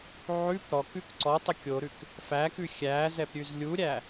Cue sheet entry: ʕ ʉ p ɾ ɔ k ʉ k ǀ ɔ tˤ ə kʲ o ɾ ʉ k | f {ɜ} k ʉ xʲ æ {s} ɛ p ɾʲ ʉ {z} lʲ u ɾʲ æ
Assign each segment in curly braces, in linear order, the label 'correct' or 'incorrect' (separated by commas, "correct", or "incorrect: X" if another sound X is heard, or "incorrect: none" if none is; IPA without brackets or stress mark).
incorrect: æ, incorrect: z, correct